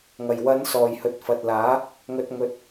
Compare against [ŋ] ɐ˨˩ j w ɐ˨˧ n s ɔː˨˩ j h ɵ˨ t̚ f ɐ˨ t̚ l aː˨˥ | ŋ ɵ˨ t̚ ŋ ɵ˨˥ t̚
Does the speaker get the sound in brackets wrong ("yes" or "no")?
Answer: no